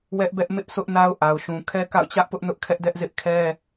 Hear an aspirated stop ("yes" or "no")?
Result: yes